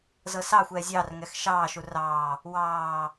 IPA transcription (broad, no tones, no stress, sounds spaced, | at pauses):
z ɤ s ɑ xʷ ɛː zʲ ɑ r ŋ ɛ x ʃ ɑː ʃ u r ɑː | w ɑː